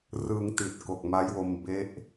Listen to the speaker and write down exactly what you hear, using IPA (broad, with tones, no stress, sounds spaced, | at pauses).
r ɯ˧ ŋ t i˨˩ t̚ k o˨˩ k̚ m a˦˥ j w o˧ m b e˦˥ ʔ